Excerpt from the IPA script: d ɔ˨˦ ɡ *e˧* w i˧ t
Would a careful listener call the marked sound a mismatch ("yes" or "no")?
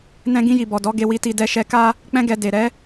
no